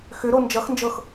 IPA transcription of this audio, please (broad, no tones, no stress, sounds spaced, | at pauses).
x ʏ ɾ o n d͡ʒ ʌ x n d͡ʒ ɤ x